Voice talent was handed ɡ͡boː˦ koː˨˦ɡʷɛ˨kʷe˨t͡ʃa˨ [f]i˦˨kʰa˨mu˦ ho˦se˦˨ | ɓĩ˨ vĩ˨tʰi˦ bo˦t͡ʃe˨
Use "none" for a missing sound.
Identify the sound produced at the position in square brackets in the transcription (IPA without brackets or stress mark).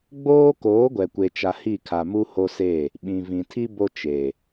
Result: h